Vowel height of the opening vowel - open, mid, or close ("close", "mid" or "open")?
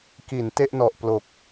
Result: close